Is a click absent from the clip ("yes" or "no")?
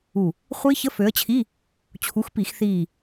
yes